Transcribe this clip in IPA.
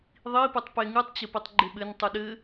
ðˤ i p u tˤ p e ŋ ɨ tˤ t͡ɕ ɘ p i tˤ ɡ͡ǃ e ɓ ɘ n tˤ u ɗ ɘ

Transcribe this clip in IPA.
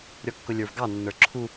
ɾʲ ɔ kː ʊ lʲ ə˞ v ɡ ɑ nː ə˞ ǁʰ u

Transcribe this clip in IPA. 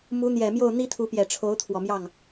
m u˧˥ n̪ j ɛ˨˩ m j o˥˩ ʊ̯ n̪ i˥ t̪ʰ u˧˥ p j ɛ˨˩ ʈ͡ʂʰ o˧˥ ʊ̯ t̪ʰ w ɔ˨˩ m j ɑ˥˩ ŋ

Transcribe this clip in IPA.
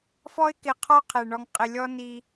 f ɔ˧ ɪ̯ k ɪ˨ qʰ ɔ˦ qʰ ɛ˨ ɳ ɔ˨ ŋ qʼ ɪ˨ lʲ ɔ˧ n i˧

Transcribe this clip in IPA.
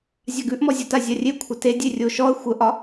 zʲ a ɡ ʉ ʔ m ɔ zʲ o t a zʲ a rʲ e kʷʰ ə t e dʲ e rʲ o ʃ ɔ ə̯ xʷ ə ʔ ɒ

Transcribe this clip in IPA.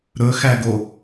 ɾ ɵ x æ ɡ o

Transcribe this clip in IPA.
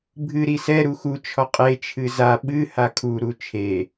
bʱ ɨ ɾ i s ɛ ɾ u x u t͡ʃʰ ɔ qʼ e t͡ʃʰ ɨ z a ɓ ɨ h a kʰ u ɾ u t͡ʃʰ e

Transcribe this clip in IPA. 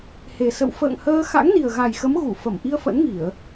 h e˨˩ s ə̰˧˨ w f ə̰ː˧˨ ŋ h əː˧ x a̰˧˥ ŋ n i˨˩ ə̯ ɣ a˨˩ j x ə˨˦ m ɣ u˧˩ f ə˧˩ m ʔ i˧ ə̯ f ə̰˧˥ n ŋ i˧˩˨ ə̯

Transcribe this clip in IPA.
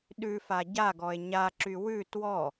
ɗ ʉ f a ɟ a ɡ ɔ e̯ ɲ a ǁ y w ʉ t w ɔ

